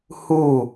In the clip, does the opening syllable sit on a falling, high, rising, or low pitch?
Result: falling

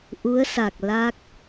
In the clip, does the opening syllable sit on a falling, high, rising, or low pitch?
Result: rising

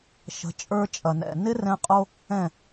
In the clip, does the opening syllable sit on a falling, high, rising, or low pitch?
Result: rising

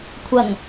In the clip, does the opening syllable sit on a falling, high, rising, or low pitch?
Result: low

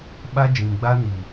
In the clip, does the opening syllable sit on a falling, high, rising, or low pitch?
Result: high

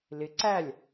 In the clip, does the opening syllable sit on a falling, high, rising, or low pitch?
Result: rising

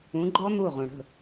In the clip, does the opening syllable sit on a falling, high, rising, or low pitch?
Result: rising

